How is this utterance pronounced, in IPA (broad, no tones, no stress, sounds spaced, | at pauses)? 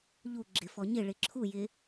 ʎ u ɡ͡ǁ ɪ f ɔ ɲ ɪ ɭ ɪ ǁʰ u j ɪ